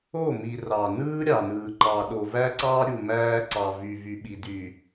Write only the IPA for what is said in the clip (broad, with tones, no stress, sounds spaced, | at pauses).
o˦˨ m i˨ r ɑ˨ n ɯː˦ ɾʲ ɑ˨ n ɯː˨ ǃ ɑ˨ ɗ o˨ v æ˦ ǀ ɑː˦ ɾʲ u˨ m æː˦ ǀ ɑ˨ v y˨ v y˨ ɓ i˨ d y˨